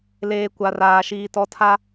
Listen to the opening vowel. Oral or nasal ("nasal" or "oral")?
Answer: oral